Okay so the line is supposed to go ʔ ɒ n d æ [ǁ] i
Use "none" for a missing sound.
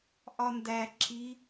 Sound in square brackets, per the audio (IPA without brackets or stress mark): ǁ